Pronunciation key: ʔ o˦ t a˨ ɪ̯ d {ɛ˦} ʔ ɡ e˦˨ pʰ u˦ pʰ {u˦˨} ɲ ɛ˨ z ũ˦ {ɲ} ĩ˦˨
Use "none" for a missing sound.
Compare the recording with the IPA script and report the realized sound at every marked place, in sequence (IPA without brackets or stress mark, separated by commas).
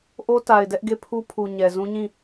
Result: ɛ˦, u˨, ɲ